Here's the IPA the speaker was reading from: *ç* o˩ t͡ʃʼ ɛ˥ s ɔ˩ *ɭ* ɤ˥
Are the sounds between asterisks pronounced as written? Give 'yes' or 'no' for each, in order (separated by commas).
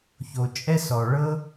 yes, yes